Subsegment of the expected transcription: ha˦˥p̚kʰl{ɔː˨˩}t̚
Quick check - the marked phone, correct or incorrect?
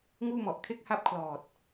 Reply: correct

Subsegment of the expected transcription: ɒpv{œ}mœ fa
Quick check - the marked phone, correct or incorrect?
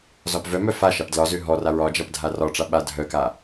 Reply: correct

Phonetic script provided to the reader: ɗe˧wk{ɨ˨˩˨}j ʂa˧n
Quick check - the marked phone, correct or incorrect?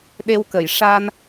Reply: incorrect: ə˨˩˨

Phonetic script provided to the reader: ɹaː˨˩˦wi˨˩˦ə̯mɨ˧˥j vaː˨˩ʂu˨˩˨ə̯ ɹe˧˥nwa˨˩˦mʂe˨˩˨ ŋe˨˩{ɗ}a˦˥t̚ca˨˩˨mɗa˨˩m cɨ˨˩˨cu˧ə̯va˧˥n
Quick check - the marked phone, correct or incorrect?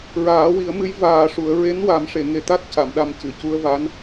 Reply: incorrect: t̪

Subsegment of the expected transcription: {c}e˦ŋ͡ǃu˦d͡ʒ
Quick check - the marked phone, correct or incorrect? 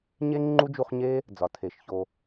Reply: incorrect: ɲ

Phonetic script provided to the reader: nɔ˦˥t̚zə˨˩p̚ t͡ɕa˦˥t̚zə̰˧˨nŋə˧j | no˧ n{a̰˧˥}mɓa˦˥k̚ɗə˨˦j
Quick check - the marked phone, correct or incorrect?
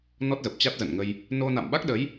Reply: incorrect: a̰˧˨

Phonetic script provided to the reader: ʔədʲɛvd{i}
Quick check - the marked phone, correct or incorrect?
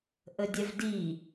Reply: correct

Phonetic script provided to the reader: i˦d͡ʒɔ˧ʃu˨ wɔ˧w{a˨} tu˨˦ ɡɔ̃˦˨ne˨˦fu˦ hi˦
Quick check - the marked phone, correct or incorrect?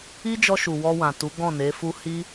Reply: incorrect: ã˨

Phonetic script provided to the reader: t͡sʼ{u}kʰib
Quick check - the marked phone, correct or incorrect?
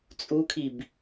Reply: correct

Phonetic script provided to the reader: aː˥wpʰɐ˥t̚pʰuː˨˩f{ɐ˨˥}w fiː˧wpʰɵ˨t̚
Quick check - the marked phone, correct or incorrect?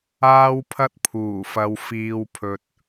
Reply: incorrect: ɐ˨˧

